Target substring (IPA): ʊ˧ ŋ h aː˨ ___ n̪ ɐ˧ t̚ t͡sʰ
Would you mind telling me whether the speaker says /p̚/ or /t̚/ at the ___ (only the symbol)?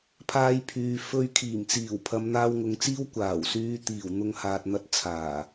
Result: t̚